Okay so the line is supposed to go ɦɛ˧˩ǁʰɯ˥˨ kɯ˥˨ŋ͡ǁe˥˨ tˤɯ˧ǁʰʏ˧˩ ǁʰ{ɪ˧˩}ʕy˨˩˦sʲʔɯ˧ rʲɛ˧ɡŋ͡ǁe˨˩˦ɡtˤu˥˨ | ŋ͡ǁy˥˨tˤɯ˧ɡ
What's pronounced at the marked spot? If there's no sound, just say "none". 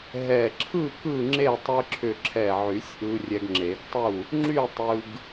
ɛ˧˩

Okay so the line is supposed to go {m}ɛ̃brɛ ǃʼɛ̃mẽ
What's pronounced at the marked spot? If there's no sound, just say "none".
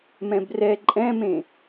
m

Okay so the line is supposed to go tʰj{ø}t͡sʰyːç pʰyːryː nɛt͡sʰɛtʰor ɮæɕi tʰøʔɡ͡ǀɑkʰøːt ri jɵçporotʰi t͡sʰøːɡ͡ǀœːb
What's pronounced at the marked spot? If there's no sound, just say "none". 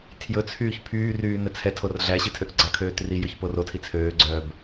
ɵ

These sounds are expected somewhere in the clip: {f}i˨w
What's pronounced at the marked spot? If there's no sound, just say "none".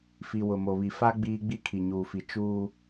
f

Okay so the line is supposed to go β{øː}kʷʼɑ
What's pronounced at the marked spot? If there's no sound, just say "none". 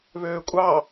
øː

